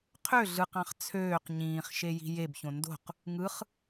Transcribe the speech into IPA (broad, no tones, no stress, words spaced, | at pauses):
qʰø ɮɯqɑ̃χ t͡sʰøːq ɲĩːχ ʃeji̤jebçõ ndo̤q | ŋɯχ